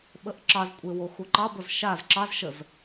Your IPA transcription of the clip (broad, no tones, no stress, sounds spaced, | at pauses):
ɓ ə ʔ ǁ ɑ z kʷʼ e w o x u ǃ ɑ b ə z ʃ a z ǁ ɑ z ʃ ə z